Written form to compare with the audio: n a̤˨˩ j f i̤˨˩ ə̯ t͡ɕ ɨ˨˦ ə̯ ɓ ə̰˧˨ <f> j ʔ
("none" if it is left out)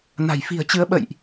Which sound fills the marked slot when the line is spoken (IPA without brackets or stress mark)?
none